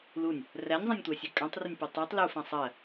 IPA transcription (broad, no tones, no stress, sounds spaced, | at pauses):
l u nʲ | r æ nʲ zˤ ã nʲ tʷ æ sʲ ø kʼ ã tˤ r ə nʲ p ʉ tˤ i tˤ l u f ã sˤ ɜ